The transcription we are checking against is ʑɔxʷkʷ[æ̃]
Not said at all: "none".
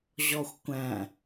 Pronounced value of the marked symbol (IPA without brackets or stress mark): æ̃